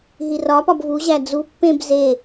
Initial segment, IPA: ɦ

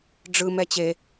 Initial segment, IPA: ɖ͡ʐ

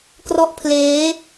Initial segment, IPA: k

